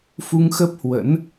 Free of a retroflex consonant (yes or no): yes